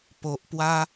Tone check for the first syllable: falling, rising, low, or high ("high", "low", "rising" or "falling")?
low